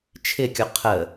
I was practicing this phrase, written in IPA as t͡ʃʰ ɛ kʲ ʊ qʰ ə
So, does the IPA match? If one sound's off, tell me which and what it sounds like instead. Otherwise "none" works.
ɛ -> ɪ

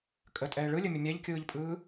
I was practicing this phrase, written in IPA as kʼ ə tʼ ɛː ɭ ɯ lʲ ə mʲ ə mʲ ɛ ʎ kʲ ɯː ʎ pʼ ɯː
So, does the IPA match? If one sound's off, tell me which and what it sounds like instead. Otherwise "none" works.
none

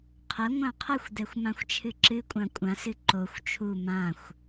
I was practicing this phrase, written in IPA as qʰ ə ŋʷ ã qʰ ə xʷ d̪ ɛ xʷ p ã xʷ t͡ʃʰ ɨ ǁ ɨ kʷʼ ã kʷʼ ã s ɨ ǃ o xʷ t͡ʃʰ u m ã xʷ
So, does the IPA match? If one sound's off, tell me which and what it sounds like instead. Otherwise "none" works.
p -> m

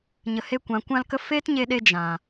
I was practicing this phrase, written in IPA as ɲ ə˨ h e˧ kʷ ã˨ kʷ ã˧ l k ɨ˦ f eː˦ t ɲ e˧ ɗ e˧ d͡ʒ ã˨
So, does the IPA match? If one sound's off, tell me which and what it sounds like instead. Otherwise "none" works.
ɨ˦ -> ə˦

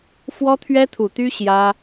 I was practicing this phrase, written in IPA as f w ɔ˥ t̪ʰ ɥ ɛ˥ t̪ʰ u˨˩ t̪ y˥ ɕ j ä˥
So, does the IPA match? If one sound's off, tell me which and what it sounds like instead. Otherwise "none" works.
none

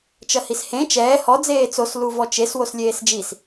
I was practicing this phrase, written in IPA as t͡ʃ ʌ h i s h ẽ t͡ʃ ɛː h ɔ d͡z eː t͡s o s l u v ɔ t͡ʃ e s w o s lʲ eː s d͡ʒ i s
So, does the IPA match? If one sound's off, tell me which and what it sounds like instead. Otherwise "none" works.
none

